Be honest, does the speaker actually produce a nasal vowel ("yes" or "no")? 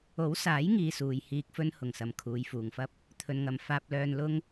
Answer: no